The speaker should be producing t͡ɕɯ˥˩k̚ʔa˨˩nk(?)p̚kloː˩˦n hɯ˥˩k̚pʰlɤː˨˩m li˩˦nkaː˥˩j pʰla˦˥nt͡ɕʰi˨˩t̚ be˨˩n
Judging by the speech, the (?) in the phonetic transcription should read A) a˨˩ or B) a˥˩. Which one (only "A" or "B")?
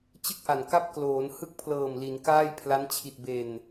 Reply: B